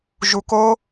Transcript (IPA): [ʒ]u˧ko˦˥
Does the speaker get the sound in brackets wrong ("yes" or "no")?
no